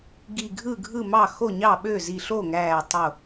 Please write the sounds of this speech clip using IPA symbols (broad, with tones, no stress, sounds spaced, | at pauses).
ɡ i˧˩ ɡʱ ɯ˥˩ ɡʱ ɯ˥˩ m ɑ˥˩ x o˥˩ ɲ ɑ˥˩ ɓ ø˥˩ z i˧˩ ɬ o˥˩ ŋ æː˧˩ tˤ o˧˩